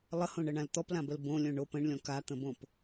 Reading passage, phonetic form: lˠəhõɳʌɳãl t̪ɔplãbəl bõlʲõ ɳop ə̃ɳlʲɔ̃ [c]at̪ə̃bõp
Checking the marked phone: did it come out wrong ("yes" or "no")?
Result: yes